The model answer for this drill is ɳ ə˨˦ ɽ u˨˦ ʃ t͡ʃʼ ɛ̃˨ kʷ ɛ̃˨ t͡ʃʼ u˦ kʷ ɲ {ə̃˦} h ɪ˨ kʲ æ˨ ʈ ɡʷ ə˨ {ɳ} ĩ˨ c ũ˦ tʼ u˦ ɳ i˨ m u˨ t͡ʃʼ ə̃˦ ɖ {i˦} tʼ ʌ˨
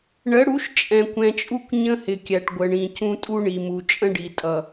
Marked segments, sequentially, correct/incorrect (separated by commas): correct, correct, incorrect